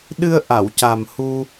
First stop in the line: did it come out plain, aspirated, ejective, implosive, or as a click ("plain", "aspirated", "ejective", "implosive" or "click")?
implosive